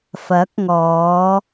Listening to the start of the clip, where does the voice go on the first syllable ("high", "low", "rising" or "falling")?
rising